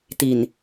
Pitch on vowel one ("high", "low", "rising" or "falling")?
low